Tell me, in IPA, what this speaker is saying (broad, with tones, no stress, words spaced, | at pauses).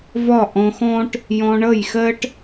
vɒ˦˨ʔɔ̃˧xɔ̃˦ʈ | jɔ̃˧ɳʌ˦˨jxɜ˦ʈ